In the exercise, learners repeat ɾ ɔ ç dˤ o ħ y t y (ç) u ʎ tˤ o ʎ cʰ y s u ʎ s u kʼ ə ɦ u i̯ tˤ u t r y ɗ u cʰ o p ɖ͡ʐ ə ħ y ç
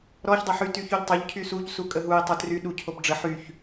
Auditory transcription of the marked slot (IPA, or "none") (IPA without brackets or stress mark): ç